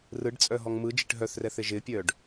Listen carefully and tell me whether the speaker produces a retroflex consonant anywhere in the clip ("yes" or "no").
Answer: yes